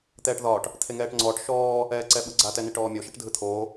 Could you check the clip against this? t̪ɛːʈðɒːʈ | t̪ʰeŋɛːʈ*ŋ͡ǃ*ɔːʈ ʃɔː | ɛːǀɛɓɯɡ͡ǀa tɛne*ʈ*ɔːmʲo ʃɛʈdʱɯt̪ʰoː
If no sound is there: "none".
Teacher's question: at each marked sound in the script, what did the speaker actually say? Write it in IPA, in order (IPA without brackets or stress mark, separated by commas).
ŋ͡ǀ, ʈ